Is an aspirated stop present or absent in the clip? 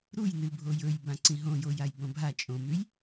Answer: absent